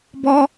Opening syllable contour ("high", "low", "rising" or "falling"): high